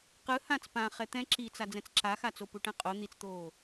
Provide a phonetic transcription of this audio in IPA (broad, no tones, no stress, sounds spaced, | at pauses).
q ɯ h ã t͡s p ã χ ɛ t̪ ɛ̃ ǁ i t͡s a d͡z ɛ̃ t͡s ǁ a x a t͡s o p u ʈ ɛ̃ qʼ o n̪ i t͡s t̪ oː